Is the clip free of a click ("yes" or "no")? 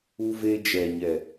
yes